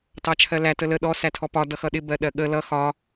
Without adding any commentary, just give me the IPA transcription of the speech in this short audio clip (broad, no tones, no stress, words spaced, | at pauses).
tɑt͡ʃʰɜlæ tələ ɗɔ sætʰɔpɒ dʌxʌɗɪ bɜɗɜɠə lʌ xɒ